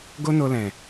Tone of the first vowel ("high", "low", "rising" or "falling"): high